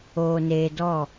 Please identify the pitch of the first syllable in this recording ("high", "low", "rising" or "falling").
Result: low